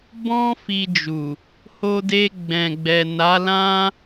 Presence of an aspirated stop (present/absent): absent